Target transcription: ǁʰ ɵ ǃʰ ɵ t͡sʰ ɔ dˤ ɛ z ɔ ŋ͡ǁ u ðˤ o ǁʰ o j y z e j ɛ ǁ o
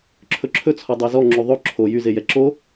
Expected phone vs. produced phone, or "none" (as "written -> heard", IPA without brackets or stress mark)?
ǃʰ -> ǁʰ